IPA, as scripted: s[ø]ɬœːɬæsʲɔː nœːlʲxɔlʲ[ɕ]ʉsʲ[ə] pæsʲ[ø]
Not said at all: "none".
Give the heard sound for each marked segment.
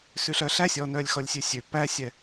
ʉ, sʲ, ø, ɛ

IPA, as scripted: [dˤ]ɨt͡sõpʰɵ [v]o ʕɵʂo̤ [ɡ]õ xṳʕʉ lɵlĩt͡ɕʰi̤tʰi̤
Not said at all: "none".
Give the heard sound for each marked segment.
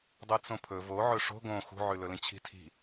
dˤ, v, ɡ

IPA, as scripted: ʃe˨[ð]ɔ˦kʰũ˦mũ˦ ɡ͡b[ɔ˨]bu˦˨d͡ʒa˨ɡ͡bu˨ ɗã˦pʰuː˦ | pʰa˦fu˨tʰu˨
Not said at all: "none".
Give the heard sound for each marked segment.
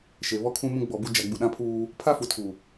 β, ɔ˨

